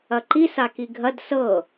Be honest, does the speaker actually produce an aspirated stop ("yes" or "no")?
no